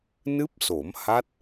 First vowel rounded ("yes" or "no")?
no